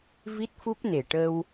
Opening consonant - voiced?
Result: yes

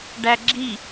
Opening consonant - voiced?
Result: yes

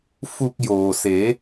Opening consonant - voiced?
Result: no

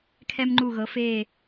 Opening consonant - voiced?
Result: no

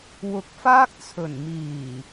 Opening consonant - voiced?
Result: yes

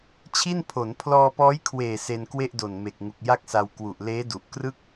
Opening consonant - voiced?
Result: no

